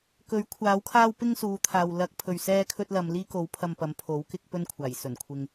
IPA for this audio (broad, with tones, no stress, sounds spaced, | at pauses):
k ɵ˨˥ ɥ kʷʰ aː˨˥ w kʰ aː˥ w p ɪ˥ ŋ s uː˨˧ t̪ʰ aː˨ w l ɐ˧ k̚ pʰ ɵ˨ ɥ s ɛː˥ kʰ ɵ˥ t̚ l ɐ˨˧ m l iː˥ k o˨˥ w pʰ ɐ˧ m p ɐ˨˥ m pʰ o˨˥ w k ɪ˥ k̚ p ɵ˥ n kʷʰ aː˨˩ j s ɵ˨˩ n kʷʰ ɪ˨ ŋ